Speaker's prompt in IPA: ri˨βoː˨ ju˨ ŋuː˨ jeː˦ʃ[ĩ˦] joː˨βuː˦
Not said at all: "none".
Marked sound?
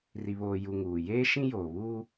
ĩ˦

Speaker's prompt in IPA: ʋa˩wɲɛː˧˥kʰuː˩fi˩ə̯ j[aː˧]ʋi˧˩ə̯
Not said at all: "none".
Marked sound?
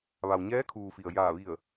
aː˧˩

